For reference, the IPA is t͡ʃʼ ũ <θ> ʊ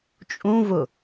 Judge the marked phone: incorrect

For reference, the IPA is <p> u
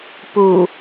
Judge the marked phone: correct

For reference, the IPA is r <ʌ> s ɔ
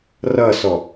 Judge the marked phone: correct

